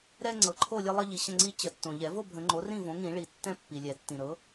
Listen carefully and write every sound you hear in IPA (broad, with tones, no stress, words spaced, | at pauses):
ɾɛ˦ ŋ͡ǀɤ˨ǃʰo˥˨lʲə˦lˠə˦ ʎi˨ɕə̃˥˨ŋ͡ǀi˦ t͡ɕə˨˩˦ tːõ˨ ʎɛ˨˩˦vo˥˨bʱə̃˨˩˦ ŋ͡ǃo˩˥rĩ˥˨võ˩˥ŋĩ˨˩˦ ɭi˨˩˦tːɛ̃˦ pːi˨lʲɛ˨˩˦tːĩ˨ ɾɤ˩˥